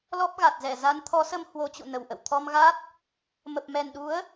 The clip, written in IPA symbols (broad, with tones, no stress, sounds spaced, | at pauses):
l ɔ˦˥ p̚ ɣ a˨˩ t̚ z ɛ˧˩ z a˨˦ n t̪ʰ ɔ˨˦ s ə˧ m h w o˨˦ t͡ɕ ṵ˧˨ n ə˧˩ w ʔ ə̰˧˨ w t̪ʰ ɔ˧ m ɣ a˦˥ t̚ | m ə˨˩ p̚ m ɛ˨˩ n ɗ u˨˦ ə̯